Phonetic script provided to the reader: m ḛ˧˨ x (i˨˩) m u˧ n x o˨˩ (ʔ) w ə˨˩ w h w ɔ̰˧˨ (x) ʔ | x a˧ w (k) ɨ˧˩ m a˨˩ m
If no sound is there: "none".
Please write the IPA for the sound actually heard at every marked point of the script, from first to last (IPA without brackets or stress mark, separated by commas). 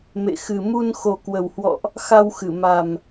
ɨ˨˩, k, none, x